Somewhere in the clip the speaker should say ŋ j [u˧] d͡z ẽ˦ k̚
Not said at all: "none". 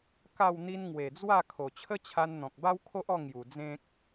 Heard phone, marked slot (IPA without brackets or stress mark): u˨˩